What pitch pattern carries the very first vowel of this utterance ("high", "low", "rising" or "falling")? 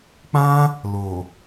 high